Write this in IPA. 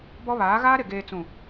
bɔ˦βaː˨˦ ɣaː˦ɾɪ˨ ɡeː˨t͡sũ˨

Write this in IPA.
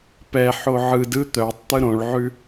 pɛħo ʕɯ dɯ t̪œtˤ t̪ɯɾõɭʕʉ

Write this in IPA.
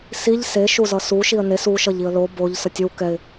siʎ se ʃuzʌsu ʃiə̯nes u ʃʌʎiə̯lo boʎ sʌtʲow kɛɪ̯

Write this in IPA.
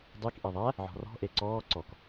dˤik ʔeðˤæ | ʕɔ̤rɔ̤ ʔeǀɔː ǀɔk

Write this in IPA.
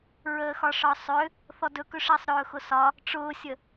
ɹəːxɒʂɒsˤʏ | θɔdɵkɵ ʂəːsˤɾɵːxʊsɒ | ʈ͡ʂʊːsʲə

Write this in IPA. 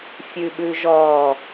fʲʉɓʉʒɔ

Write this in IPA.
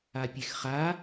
apʲexχa

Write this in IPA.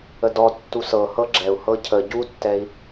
ədɔ tːusɤhɤ ɡ͡ǁɛu̯ hɤcʰə ɟutːɛi̯

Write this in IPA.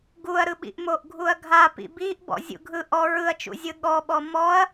ɡuɐ̯ɾɯɓḭʔ moʔɡʱuɐ̯ɡʱa pḭbiʔ bɔ̰zʲṵɡʱɯ ʔɔ ɹɯɐ̯t͡ʃṵzʲɯ ɠɔɓɔ mɔɐ̯

